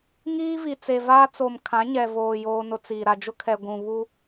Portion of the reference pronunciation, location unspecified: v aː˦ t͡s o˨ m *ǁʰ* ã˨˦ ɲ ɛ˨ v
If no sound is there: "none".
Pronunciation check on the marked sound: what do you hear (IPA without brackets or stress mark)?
kʰ